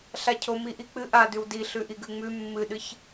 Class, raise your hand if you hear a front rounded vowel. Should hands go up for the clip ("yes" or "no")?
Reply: no